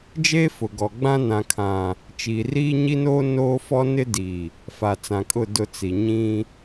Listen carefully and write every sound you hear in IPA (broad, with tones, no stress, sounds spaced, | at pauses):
d͡ʒ eː˦ f ʊ˨ ɡ ɔ˨ ɡ͡b ã˦ n ã˨ kʰ ã˨ | t͡ʃ iː˨ r iː˦ ɲ i˦ n oː˦ n oː˦ f ɔ˦ n ɪ˦ d i˨ | f a˨ t͡s ã˨ kʼ ʊ˦˨ d ʊ˦ t͡s i˨ ɲ ĩ˦